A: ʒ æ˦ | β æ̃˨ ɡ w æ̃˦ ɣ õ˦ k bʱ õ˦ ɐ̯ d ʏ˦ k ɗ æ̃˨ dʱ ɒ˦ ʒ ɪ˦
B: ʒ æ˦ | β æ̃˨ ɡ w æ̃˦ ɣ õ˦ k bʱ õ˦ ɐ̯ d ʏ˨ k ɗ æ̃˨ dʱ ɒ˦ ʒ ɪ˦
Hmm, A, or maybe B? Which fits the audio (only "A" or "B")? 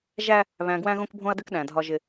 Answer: A